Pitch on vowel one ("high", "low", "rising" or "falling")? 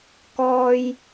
low